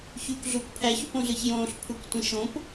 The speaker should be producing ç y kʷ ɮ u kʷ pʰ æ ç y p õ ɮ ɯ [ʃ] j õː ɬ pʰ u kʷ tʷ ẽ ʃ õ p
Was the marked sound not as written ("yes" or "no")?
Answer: yes